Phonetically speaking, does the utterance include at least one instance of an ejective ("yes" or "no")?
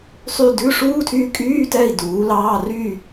yes